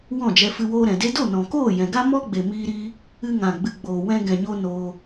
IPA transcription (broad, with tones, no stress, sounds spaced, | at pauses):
w ɔ̃˦˨ d͡ʒ ɛ˧ f ɨ˧ w oː˧ ɾ ɛ̃˨ d e˧ d o˦˨ n ɔ̃˨ k oː˦˨ j ɛ̃˨ ɡ a˦ m ɔ˦ ɡ͡b e˨ m iː˧ ɾ iː˧ | ɨ˧ ŋ ã˨ ɡ͡b ɨ˨ ɡ͡b oː˨ w ɛ̃˧ ɡ ɛ̃˨ ɲ o˧ n oː˧